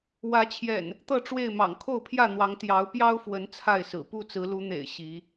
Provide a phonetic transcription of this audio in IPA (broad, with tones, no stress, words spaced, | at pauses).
wä˨˦t͡ɕʰjɛ̰˨˩n | t̪ɤ˥˨ʈ͡ʂwe˥˨ɪ̯mɑ̰˨˩ŋ kʰo˥˨ʊ̯pʰjä˥˨n̪wɑ˨˦ŋ t̪jɑ˨˦ʊ̯pjɑ˦ʊ̯fwə˨˦n t͡sʰa˥˨ɪ̯sɹ̩˨˩ pu˥˨ t͡sɹ̩˨˦lu˨˦n̪ḛ˨˩ɪ̯ ɕi˨˦